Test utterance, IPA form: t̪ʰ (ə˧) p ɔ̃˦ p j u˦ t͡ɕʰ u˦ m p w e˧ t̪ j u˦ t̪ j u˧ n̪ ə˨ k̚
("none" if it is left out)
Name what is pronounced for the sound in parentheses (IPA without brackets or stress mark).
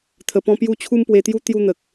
ə˧